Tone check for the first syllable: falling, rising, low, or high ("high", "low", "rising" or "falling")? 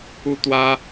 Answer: high